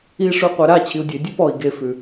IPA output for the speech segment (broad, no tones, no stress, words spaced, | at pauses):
iʂʉ qʷɛɾa t͡ɕʰiu̯dʲe dʲʉpɔi̯ ɡefʉ